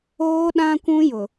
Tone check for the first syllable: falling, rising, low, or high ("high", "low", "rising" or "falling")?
high